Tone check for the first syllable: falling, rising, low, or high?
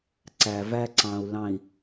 low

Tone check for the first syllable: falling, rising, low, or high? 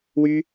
high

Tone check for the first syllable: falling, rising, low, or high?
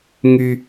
low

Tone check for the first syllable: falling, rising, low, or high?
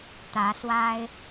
rising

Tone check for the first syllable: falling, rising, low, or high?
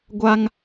high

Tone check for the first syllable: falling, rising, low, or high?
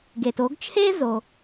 low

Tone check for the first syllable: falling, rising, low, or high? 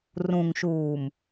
low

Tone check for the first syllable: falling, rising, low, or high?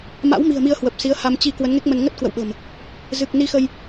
rising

